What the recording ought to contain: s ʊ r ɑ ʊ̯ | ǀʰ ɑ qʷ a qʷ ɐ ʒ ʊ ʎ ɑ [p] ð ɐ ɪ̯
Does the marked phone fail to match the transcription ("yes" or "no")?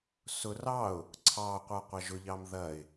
yes